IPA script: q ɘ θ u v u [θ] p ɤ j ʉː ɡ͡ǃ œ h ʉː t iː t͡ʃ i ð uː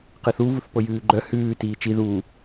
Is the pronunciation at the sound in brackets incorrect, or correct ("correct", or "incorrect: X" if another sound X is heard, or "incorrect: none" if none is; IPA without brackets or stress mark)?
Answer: correct